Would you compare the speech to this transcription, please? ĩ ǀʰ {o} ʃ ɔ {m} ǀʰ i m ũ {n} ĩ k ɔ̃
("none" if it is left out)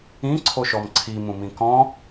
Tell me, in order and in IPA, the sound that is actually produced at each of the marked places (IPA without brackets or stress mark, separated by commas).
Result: o, m, m